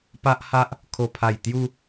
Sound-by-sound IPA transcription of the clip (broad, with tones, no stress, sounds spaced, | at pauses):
p a˦ ʔ h a˦ ʔ | kʰ o˨˩ pʰ a˨˩ j t̪ j u˧